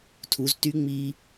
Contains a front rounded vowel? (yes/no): yes